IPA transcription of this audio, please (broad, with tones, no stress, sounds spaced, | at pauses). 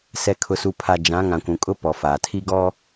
s ɛ˨ kʰ ʊ˨ s u˨ pʰ a˨ d͡ʒ ã˨˦ ŋ ã˨ kʷ ũ˨ kʼ ʊ˦ p ɔ˨ f aː˨ tʰ i˦ ɡ ɔ˦